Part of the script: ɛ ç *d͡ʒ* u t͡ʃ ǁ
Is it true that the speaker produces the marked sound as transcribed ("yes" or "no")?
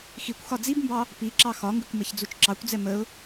no